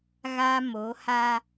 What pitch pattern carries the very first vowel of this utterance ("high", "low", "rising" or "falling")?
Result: high